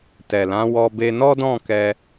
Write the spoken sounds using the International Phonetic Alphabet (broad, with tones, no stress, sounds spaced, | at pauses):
t ɛ˨ l ã˨˦ w ɔ˧ b e˧ n ɔ˦ d ɔ̃˦˨ k ɛ˧